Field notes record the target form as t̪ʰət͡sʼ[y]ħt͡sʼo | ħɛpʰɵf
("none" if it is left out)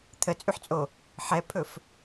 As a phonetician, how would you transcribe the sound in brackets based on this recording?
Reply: y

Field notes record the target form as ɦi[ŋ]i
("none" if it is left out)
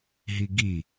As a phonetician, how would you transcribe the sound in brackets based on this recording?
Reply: ɡ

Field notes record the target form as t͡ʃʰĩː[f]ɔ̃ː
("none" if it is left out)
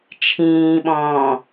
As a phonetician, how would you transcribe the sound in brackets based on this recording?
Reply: ɓ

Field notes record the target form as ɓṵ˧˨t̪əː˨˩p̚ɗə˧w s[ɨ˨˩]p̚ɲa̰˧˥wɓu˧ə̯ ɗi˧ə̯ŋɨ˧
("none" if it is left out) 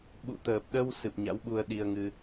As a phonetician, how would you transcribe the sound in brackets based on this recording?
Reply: ɨ˨˩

